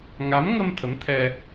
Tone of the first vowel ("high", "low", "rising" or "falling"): rising